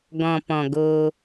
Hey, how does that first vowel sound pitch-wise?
low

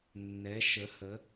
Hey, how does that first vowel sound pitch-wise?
rising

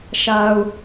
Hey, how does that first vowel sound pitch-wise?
low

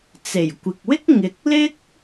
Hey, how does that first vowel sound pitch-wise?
low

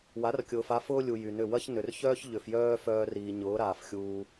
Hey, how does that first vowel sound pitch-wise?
rising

